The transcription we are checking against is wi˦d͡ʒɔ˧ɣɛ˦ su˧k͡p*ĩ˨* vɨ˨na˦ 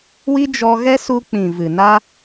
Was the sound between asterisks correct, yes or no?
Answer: yes